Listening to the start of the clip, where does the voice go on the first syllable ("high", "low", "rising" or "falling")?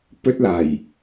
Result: high